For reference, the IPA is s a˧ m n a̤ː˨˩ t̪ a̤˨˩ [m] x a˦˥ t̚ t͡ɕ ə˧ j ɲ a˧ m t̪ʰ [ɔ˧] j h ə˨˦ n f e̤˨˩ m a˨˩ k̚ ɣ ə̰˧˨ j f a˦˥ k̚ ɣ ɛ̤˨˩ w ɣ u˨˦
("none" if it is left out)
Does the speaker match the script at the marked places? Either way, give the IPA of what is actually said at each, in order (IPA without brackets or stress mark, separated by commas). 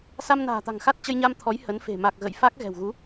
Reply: ŋ, ɔ˨˦